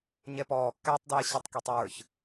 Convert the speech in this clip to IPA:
ɲɛpɔː kːætˤdɛː ɕɑtˤkitˤwə˞ç

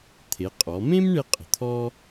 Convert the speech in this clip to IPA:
t̪ʰe˩˧qʼɔ˩˧mẽ˥m ɳe˥qʼə̤˩˧t̪ʰɔ˥

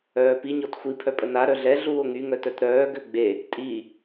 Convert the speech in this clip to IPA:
œːpi ɲɔtxʷi pʰœpʼəna ɾœɮɛ ɮuːo̯ŋy ŋœtœtɾœː ɡøɡ͡be | tʼi

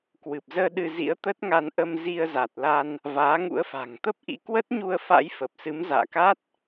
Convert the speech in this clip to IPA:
kwɨ˨˩p̚zəː˧ ɗɨ˧zḭ˧˥ə̯t̪ə˦˥t̚ŋa˧n ʔə˧mzi˧ə̯ za˨˩t̚la˧n | vaː˨˦ŋṵ˧˥ə̯fa̤˨˩ŋ t̪ə˦˥p̚ʔḭ˧˥ kwə˦˥t̚ɲu˧ə̯ fa̰˧˥j fə˨˩p̚sɨ˨˦m za̰ː˧˨ka˦˥t̚

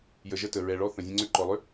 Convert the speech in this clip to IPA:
jə˨ʒə˦tə˨ ɹɛ˨ɭɔ˦ θə̃˨zʲə̃˦ŋ͡ǀʏ˦ ǃɔ˨lˠʏ˦

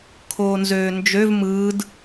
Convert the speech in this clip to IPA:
kʰoːnzøːnd͡ʒøv mɯːd

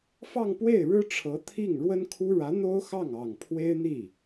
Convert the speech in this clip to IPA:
fɑ˥˧ŋpwe˥˩ɪ̯ ɻɻ̩˥ʈ͡ʂʰɤ˧˥ t̪ʰi˥˩ŋ ɻwə˥nkʰu˥ ɻä˧˥n̪o˥ʊ̯xɑ˥˩ŋ ɑ˨˩ŋ pʰwe˥ɪ̯n̪i˥˩

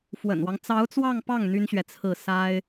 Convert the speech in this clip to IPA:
fwə̰˨˩nwɑ˦ŋ t͡sɑ˧˥ʊ̯t͡swɑ˥˧ŋpɑ˥˩ŋ n̪y˥nɕɥɛ˨t͡sʰɹ̩˥˩ sa˥ɪ̯

